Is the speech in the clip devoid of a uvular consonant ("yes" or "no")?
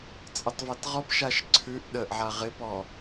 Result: no